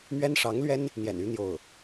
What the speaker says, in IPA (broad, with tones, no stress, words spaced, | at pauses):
mɥɛ˥nʂɑ˧˥ŋlɥɛ˥n | n̪jɛ̰˨˩ny˧˥ n̪jo˥˩ʊ̯